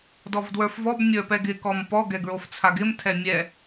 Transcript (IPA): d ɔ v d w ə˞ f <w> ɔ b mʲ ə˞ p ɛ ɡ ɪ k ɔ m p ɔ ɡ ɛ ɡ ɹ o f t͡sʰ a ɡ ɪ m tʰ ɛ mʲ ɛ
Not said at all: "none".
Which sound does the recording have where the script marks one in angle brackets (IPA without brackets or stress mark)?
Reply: v